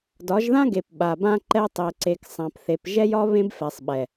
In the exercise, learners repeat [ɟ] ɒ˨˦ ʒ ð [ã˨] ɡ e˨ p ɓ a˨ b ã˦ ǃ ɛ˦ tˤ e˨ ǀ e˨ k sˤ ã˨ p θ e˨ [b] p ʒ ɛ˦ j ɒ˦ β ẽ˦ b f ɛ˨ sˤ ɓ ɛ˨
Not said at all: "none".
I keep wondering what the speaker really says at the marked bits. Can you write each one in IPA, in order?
d, ã˦, none

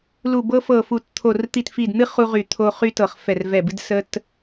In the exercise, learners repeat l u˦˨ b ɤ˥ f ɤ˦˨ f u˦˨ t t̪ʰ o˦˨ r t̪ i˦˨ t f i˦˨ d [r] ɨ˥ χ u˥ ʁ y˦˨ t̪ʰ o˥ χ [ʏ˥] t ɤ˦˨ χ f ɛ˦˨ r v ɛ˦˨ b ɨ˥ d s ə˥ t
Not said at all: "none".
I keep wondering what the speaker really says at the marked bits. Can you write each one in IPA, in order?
n̪, y˥

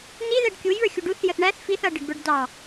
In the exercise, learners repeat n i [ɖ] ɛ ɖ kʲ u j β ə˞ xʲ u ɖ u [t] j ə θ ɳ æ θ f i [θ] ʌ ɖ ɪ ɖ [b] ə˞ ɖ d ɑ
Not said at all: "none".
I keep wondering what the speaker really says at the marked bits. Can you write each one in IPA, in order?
ð, θ, θ, b

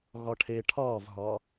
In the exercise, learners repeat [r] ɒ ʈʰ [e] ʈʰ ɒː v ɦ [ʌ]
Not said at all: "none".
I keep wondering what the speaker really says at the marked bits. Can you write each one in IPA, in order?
ɣ, e, ɒ

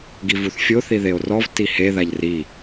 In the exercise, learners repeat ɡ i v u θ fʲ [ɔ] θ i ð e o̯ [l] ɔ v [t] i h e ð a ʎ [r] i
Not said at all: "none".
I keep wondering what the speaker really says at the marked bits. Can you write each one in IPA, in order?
o, r, t, r

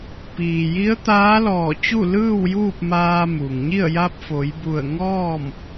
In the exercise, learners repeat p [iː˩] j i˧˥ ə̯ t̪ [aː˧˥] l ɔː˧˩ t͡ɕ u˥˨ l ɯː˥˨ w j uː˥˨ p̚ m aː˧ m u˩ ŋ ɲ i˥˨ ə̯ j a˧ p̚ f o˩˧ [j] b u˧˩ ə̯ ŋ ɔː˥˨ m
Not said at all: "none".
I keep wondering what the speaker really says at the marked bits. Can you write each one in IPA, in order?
iː˩, aː˧˥, j

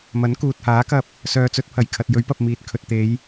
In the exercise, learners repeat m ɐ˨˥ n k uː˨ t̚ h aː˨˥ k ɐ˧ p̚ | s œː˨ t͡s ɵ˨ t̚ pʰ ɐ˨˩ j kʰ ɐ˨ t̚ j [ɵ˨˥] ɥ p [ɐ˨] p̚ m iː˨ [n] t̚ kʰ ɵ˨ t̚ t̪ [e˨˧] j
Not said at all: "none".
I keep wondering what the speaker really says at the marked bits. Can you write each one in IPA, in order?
ɵ˨˥, ɐ˨, none, e˨˧

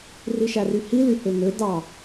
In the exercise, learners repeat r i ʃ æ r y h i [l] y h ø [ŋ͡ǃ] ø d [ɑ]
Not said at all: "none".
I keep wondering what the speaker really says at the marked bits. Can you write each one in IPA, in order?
l, ŋ, ɑ

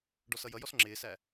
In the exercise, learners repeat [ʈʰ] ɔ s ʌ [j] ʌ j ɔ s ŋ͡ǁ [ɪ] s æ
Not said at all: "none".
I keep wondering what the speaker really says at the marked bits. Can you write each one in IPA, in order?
ɖ, j, ɪː

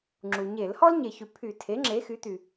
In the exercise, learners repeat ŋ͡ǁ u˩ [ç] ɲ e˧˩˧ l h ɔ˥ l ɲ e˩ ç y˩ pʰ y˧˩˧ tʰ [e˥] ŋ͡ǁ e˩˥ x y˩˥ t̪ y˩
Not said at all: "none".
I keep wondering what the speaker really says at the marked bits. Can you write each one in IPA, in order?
none, e˩˥

